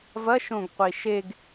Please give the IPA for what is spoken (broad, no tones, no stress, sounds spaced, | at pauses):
v ɐ ʃ õ ɡ qʷ i ʃ e ɡ